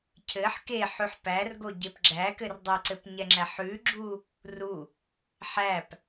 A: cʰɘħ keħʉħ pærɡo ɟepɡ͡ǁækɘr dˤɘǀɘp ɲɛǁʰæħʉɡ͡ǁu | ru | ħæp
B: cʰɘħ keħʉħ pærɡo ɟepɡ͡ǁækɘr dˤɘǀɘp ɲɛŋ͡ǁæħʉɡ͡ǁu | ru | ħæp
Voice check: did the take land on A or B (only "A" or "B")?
B